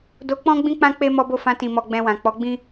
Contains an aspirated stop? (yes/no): no